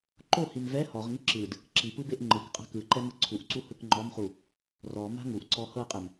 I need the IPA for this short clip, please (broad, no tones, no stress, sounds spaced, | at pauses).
ǃ o h i m v ɛ h ɔ ʁ ŋ i ǁ ɯ d | ǁ i p ɯ b e ʔ ŋ͡ǃ ɯ k qʼ a̤ k ɯ ǃ ɛ m ɯ ǀʰ u ʔ ǀ u h ɯ k ŋ͡ǃ ɔ m χ u | r ɔ m a̤ ŋ u ʔ ǀ ɔ h ɤ qʼ ɛ m